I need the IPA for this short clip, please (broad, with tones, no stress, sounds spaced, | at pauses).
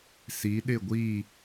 s i˨˦ ɗ ɪ˦˨ ɡʷ i˦˨